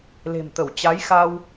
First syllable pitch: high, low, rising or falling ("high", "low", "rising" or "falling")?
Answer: low